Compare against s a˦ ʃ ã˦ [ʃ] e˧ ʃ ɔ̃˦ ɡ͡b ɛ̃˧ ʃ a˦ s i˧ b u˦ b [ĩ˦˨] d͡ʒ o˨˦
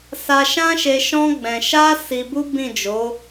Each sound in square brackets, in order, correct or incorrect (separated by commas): correct, correct